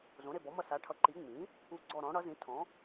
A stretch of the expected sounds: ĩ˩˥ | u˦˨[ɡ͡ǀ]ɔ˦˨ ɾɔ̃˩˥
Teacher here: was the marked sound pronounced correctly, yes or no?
yes